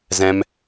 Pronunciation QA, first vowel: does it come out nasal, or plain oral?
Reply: nasal